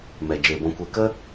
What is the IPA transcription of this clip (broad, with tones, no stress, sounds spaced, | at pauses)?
m ɛ˨ d͡ʒ eː˨ b ɔ̃˧ kʷ e˧ k ə˦